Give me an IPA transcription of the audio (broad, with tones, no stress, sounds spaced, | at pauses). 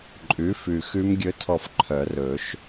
ǃʼ ʉ˩˥ f ʉ˨˩ x ʉ˦˥ m ɡʲ ɵ˦˥ tʰ ɔ˦˨ f ǃʰ œ˨˩˦ r ɵ˨˩˦ ʃ